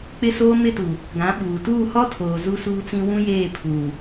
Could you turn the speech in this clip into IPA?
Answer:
k͡p ɪ˦ s oː˦ m ɪ˦ t u˨ | ɡ ã˨˦ ɓ uː˨ t uː˦˨ h ɔ˦ tʰ oː˨ z u˦ s uː˦ t͡s ĩ˦ w ũ˦ j eː˦˨ pʰ uː˨

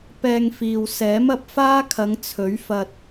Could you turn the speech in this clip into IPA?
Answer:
p ɛː˧ ŋ f iː˨ w s ɛː˨˥ m ɐ˧ p̚ f aː˥ kʰ ɐ˨˧ ŋ t͡sʰ ɵ˨˥ ɥ f ɐ˧ t̚

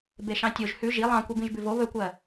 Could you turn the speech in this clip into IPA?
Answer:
b e ʃ ɑ̃ tʲ o ʒ h ʉ ʒ i lˠ ɑ̃ kʷ e b ĩ ʒ b ʉ v o β ɵ kʷ ɜ

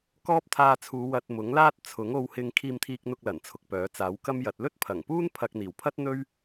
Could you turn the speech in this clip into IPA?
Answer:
k ɔː˥ p̚ t̪ʰ aː˧ t͡sʰ uː˨˧ w ɐ˧ t̚ m ʊ˨˥ ŋ l aː˥ t̚ t͡sʰ ʊ˨˥ ŋ o˧ w h ɪ˧ ŋ kʰ iː˧ m t̪ʰ iː˧ k̚ n̪ ʊ˧ k̚ l ɐ˨˩ n t͡sʰ ʊ˨ k̚ p œː˨˥ t͡s aː˨˥ w k ɐ˥ m j ɐ˨˥ t̚ l ɵ˥ t̚ pʰ ɐ˨˩ ŋ p uː˥ n pʰ ɐ˧ k̚ n̪ iː˨˩ w pʰ ɐ˥ t̚ n̪ ɵ˥ ɥ

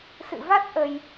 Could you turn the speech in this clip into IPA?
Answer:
s ɨ̰˧˨ v a˦˥ t̚ ʔ ə˧ j

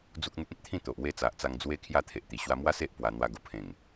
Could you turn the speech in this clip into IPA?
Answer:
d͡z u˦ k̚ n̪ u˦ k̚ ẽ˦ t̚ t̪ʰ ĩ˥˧ t̪ o˨ ʔ w e˥˧ t͡s a˨ ʔ t͡s a˧ ŋ d͡z w e˦ kʰ j a˥˧ t̪ʰ e˨ ʔ t̪ i˨˩ ɕ w a˧ m w a˦ s e˦ ʔ p w a˧ n̪ w a˦ ɡ o˨˩ pʰ ẽ˨˩ ŋ

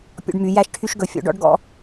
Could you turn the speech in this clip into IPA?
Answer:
pʲ ɔ̰˧ ɖ m y˩˧ j æ˧ ʃ ʈʰ y˧ ʃ ɡ ɵ˩˧ fʲ ɔ̰˩˧ ɖ ɔ̰˧ ɖ ɡ ɔ̰˧

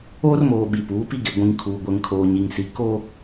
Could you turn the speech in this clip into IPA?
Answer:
oː˦ r m oː˨ ɓ i˨ p uː˨˦ p i˦ ɡ e˨ ɡʷ ĩ˨ ŋ kʰ uː˨ ɡʷ ɛ˨ ŋ kʰ oː˨ ɲ i˨ ŋ s i˨ k o˦

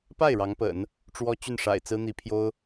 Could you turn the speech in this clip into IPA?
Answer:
p a˥˩ ɪ̯ ɻ ɑ˧˥ ŋ p ə̰˨˩˦ n | ʈ͡ʂ w ɔ˥ t͡ɕ y˥˩ n ʂ a̰˨˩ ɪ̯ t͡s ɹ̩˥ n̪ i˧˥ pʰ j o˥ ʊ̯

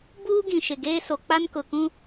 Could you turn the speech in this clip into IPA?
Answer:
b uː˦ ɡ ĩ˨ ʃ ɪ˨ ɡ eː˦ s o˨ k͡p a˦ n k ʊ˨ k ũ˦

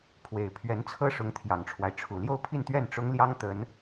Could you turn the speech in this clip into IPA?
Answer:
pʰ w e˨˩ ɪ̯ pʰ ɥ ɛ˧˥ n t͡sʰ ɤ˥ ʂ ʊ˧˥ ŋ t̪ʰ j ɑ˨˩ ŋ ʈ͡ʂʰ w a˦ ɪ̯ ʈ͡ʂʰ u˨˩ l j o˥˧ ʊ̯ pʰ i˥˧ n t̪ ɥ ɛ˥˩ n ʈ͡ʂ ʊ˥ ŋ l j ɑ˥ ŋ t̪ ə˧˥ n

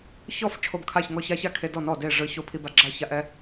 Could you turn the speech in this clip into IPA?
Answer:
ç ɔ˥˨ f t͡ʃʰ o˦ b kʰ a˥˨ ç ŋ ɔ˥˨ ç a˦ ç a˥˨ kʰ e˦ d ɔ˥˨ n ɔ˥˨ d e˥˨ ʐ ɯ˦ ç o˥˨ pʰ i˦ b a˦ ɡ͡ǁ a˥˨ ç a˦ ʔ ɛ˦

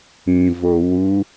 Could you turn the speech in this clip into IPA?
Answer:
ĩ v o w u

